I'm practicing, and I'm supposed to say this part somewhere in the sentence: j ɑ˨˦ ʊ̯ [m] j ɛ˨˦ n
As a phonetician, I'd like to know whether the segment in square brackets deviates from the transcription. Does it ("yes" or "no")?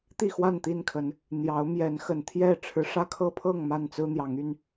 no